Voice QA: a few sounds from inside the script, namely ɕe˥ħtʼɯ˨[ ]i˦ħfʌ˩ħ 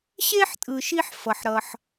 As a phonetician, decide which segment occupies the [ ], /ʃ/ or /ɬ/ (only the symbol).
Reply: ʃ